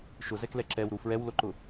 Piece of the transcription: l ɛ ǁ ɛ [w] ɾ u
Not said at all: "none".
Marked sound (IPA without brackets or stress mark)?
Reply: w